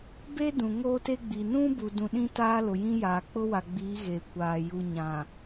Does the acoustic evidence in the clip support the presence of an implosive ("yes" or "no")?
yes